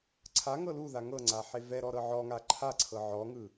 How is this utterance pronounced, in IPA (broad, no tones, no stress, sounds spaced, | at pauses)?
ǀʰ a ŋ ɤ l u ð a ŋ ɤ ŋ͡ǀ a ħ e v ɛ ɾ ɔ ɾ ɤ ʕ ɔ ŋ a ǃʰ a ǀʰ ɤ ʕ ɔ ŋ ɯ